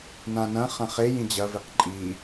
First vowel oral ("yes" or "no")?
no